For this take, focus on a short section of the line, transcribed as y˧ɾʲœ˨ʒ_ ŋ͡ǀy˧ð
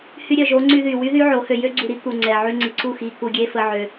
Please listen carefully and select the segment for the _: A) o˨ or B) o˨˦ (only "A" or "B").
B